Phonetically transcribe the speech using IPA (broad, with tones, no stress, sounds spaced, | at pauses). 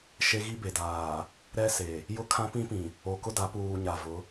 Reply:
ʃ e˦ ɣ i˦ b e˨ d aː˨ | ɾ ɛ˦ s e˨ | j ʊ˦ kʰ ã˦ p ĩ˦ p ĩ˨ | o˨ k ʊ˦ d a˨˦ p uː˨ ɲ a˨ v ʊ˨˦